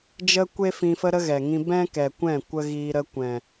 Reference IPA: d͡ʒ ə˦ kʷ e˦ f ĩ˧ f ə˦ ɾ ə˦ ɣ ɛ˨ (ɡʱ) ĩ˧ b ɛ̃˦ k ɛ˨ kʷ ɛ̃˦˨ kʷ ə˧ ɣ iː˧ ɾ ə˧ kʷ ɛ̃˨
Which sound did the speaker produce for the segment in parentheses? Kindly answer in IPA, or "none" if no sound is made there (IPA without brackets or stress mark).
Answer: ŋ